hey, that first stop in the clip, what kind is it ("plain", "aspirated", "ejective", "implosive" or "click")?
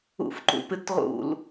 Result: click